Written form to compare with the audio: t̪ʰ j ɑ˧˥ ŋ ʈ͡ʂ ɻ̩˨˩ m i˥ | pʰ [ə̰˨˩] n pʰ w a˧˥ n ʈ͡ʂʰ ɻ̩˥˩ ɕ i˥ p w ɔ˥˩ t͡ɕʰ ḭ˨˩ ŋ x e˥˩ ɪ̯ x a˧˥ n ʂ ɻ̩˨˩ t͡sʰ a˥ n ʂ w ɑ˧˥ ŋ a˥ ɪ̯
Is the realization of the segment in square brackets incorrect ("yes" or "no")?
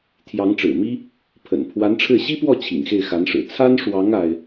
no